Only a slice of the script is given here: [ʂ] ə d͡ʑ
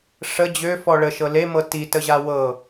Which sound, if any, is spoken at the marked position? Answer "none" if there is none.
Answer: ʂ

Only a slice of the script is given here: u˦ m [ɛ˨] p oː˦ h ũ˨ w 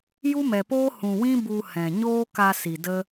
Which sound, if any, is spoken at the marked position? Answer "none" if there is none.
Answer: ɛ˨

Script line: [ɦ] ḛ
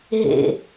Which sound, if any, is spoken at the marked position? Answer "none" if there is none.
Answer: ɦ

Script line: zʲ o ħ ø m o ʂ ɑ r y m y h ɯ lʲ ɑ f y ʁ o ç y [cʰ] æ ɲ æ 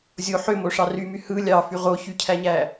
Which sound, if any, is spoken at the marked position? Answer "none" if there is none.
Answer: cʰ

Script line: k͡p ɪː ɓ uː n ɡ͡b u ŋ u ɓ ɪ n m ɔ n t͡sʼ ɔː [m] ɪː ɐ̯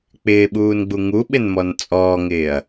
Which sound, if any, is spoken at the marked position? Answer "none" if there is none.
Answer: ŋ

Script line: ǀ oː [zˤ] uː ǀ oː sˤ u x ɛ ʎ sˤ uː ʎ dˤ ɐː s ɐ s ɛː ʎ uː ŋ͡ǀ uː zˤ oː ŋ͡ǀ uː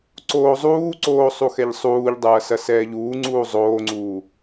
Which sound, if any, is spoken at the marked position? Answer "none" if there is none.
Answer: zˤ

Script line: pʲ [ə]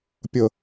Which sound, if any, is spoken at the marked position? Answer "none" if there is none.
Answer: ə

